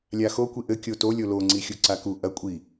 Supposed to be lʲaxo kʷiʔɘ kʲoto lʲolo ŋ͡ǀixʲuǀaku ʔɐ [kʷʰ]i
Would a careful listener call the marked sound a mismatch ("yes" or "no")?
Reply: yes